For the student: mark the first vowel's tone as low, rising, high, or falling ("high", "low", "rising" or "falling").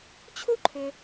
high